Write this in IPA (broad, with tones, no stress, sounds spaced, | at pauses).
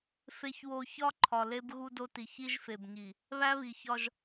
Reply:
f e˨ ç w o˨ ç ɒ˦ ǃʰ ɒ˨ l e˦ b ɣ u˦ d o˦ t i˨ ç i˦ ʒ f e˨ b ɲ i˨ | β æ˦ β i˨ ç ɒ˦ ʒ